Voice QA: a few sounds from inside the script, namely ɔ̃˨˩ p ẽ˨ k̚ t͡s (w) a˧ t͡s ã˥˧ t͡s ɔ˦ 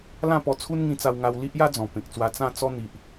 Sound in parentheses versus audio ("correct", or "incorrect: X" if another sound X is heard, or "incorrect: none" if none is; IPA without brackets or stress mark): correct